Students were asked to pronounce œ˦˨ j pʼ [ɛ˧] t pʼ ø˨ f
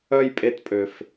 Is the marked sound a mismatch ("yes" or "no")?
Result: yes